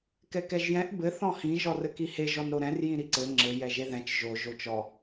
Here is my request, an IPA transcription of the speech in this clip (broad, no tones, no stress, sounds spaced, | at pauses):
k ɛ k ɛ ʒ j ɛ̃ ʔ b ɘ θ ɔ̃ h ĩ ʒ ɔ r ɘ k i h e ʒ ɔ n ɾ o ɾ ɛ̃ r j ĩ ɾ i ǀ ɘ ŋ͡ǁ ɘ j ɛ ʒ e ð ɛ̃ t͡ʃ ʒ o ʒ o t͡ʃ ɔ